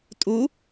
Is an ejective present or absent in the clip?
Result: present